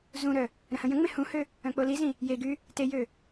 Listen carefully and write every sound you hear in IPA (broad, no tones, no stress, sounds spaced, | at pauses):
z ũ ɾ œ | ɾ ə̃ h ə̃ j ə̃ ŋ͡m ẽ h ũ h ø | œ̃ k͡p o l i z ĩ | j e ɡ y | t e j ø